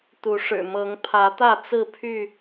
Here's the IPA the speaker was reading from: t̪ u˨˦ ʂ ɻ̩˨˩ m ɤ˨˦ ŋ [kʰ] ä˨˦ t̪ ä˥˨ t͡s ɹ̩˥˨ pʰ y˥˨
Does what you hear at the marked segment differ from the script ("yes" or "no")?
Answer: yes